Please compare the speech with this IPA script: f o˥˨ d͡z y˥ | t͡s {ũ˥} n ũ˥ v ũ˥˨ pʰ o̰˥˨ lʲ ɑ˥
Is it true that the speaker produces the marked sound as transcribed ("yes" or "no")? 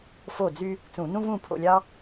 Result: no